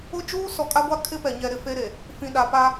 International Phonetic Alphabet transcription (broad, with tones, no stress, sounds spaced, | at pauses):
ʊ˦ d͡ʒ uː˦ s ɔ˨ kʼ a˦ ɡʷ a˦ kʰ ɪ˦ p ɛ˨ ɲ ɛ˨ ɾ ɪ˨ f e˦ ɾ e˨ | f ĩ˨ ɗ a˨ p a˦